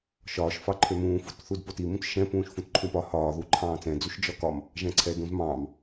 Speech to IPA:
ʃɒːʃfɑ ǃʰømũːfut θudpotimũt ʃɛ̃pũːʃ fũtǃʰũpɒ hɒːðu ǃʰɑ̃ːt͡sɛ̃d͡zuʃ d͡ʒɒkɒm | ʒɛ̃ǀʰɛdũzmɑ̃ːm

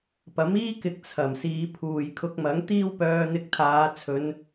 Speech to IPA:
pɐ˨˥miː˥kɪ˨k̚ t͡sʰɐ˨˩msiː˨˧ pʰuː˨jkʰʊ˧k̚mɐ˨˥ŋ t̪iː˥wpœː˧n̪ɪ˧k̚ t̪ʰaː˨˧ t͡sʰɵ˨˧n

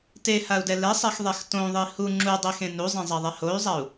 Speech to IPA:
tehau̯dɛ lɛsˤɛxðˤɛx tõðˤi hu ŋ͡ǁudˤexẽ nuzˤẽzˤaðˤɛ hoy̯zˤau̯

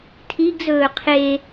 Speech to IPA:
tʰiɡzɵː qʰe

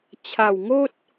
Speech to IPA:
t͡ɕʰa˨˩wŋo˦t̚

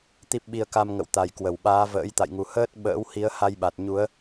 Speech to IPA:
t̪i˦˥p̚ɓi˧ə̯ka˧m ŋə̰˧˨wt̪a˨˩jkwə˧˩wɓaː˨˦ və̰ː˧˥jt̪a̰˧˨jŋu˨˩ həː˦˥t̚ ɓə̰ː˧˥whi˨˦ə̯ ha˧jɓa˨˩t̚ɲu˨˦ə̯

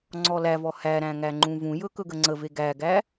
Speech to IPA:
ŋ͡ǀɔlævɔ hæɾæ̃ ŋæŋ͡ǃũvũjɵ kɵɡəŋ͡ǀəve ɡæɡæ

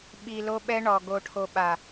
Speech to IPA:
ɓi˨ lo˦ɓɛ˦ɳɔ˨ ɡo˨ʈʰo˨ɓa˨

